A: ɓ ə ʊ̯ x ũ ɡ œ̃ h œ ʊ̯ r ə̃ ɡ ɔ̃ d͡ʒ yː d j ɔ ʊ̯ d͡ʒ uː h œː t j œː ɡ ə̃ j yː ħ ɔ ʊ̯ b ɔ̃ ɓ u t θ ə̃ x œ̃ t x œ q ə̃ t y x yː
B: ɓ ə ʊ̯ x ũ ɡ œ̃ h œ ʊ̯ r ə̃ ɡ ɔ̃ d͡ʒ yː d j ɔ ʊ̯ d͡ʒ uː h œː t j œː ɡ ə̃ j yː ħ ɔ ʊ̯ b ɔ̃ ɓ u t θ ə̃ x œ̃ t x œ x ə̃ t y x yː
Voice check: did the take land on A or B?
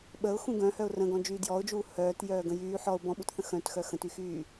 B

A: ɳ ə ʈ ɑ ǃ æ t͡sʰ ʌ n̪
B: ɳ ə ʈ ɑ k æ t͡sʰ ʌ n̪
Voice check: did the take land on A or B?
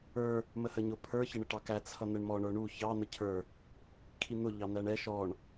B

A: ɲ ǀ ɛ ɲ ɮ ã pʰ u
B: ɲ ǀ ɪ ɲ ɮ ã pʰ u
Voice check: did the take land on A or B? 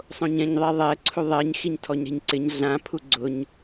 B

